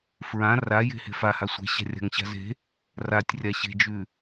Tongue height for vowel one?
low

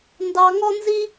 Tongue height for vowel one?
low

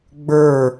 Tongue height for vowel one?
mid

